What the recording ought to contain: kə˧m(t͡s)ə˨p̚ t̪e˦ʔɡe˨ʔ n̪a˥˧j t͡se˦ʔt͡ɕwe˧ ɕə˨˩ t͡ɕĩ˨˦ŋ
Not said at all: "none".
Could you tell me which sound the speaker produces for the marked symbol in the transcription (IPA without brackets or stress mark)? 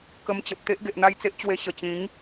t͡ɕ